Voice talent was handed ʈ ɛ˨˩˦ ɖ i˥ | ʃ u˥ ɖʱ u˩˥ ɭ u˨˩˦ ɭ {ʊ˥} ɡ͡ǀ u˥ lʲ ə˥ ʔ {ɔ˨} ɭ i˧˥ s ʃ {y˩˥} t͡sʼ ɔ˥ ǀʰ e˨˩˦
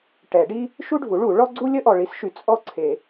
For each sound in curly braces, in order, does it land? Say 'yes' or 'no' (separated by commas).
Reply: no, yes, no